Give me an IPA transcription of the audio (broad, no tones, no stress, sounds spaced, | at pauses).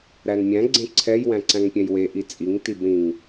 ɾ æ n mʲ æ̃ ɡ͡ǀ ẽ ǀʰ ɛ j w æ̃ ǀ æ̃ ŋ pʲ ɛ̃ j w e ʔ i t͡sʼ i ŋ t i b ɾ ĩ ŋ